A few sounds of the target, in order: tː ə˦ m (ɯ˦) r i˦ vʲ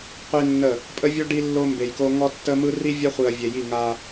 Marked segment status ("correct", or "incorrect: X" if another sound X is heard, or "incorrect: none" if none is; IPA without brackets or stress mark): correct